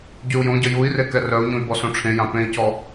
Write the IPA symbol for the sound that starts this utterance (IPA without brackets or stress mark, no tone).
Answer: ɟ